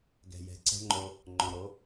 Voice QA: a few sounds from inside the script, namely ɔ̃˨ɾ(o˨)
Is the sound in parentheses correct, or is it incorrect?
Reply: incorrect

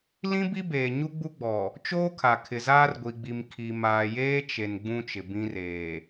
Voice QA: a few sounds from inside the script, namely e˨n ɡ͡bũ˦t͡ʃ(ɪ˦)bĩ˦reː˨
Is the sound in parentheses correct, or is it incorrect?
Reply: incorrect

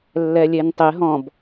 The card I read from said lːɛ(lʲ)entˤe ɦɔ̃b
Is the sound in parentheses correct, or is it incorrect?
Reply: correct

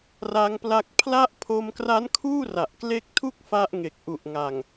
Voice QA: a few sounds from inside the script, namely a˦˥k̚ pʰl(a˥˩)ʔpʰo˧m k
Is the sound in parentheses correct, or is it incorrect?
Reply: incorrect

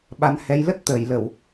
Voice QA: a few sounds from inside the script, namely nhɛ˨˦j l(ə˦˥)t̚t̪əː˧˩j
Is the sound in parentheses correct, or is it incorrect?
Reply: correct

